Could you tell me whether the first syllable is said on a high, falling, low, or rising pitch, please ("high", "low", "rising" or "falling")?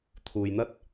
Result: low